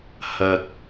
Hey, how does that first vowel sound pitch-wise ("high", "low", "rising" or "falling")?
low